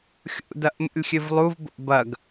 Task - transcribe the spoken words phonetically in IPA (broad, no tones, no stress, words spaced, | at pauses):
xʲṵdɐʔmṵlʲxʲɨv lˠuvbo̰ bɐɡ